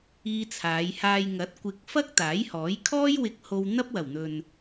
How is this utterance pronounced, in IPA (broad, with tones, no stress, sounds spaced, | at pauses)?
iː˧ t͡sʰ aː˨˧ j h aː˧ j ŋ ɐ˨˥ t̚ kʷ ɪ˧ k̚ f ɐ˥ k̚ t̪ aː˨˥ j h ɔː˨˥ j kʰ ɔː˥ j w ɪ˧ k̚ h o˧ w n̪ ɐ˥ p̚ w ɐ˨˩ w n̪ ɵ˨ n